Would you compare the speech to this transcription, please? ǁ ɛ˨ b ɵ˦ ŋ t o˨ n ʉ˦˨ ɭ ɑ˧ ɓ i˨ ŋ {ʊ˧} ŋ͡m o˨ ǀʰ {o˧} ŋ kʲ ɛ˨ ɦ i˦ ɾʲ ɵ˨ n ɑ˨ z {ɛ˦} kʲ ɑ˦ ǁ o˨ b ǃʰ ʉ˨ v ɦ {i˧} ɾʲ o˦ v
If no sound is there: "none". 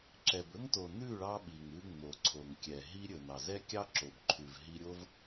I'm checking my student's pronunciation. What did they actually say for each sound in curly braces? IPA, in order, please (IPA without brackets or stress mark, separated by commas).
ʉ˧, o˨, ɛ˦, i˧